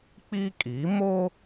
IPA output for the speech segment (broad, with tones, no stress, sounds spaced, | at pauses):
k͡p i˦ kʼ i˨˦ m o˦